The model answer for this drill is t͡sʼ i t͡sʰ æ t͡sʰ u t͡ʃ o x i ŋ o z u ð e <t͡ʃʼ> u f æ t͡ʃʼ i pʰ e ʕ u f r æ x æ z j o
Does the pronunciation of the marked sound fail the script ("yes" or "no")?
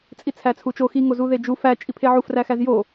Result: yes